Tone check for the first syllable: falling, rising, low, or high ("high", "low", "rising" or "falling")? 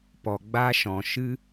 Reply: low